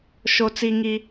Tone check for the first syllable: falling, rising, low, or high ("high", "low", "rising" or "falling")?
low